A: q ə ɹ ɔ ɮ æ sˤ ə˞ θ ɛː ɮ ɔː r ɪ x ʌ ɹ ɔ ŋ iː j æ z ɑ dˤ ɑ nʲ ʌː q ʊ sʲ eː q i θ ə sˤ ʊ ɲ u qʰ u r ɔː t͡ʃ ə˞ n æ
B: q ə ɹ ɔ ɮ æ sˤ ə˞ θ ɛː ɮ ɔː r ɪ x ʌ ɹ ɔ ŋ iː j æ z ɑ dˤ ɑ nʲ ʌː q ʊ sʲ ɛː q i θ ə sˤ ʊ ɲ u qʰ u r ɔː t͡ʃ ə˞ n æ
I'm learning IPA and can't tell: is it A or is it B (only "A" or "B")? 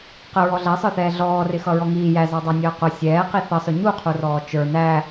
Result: B